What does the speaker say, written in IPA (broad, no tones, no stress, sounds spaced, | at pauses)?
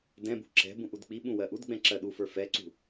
d ɛ̃ b ṳ ǁ ɛ̤ b ũ ʔ u d k͡p i ɓ ũ w ɜ ʔ u d ɡ͡b ɛ̃ ǁ ɜ ɗ u f ə˞ f ɛ ǀ ṳ